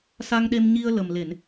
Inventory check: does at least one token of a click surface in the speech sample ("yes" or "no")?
no